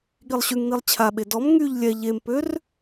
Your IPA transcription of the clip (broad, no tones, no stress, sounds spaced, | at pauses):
ɠ i lˠ ɕ y ŋ n i lˠ t͡ɕʰ a ɓ e d ɔ m ŋ y ʎ lʲ ɛ ʎ e m p ø r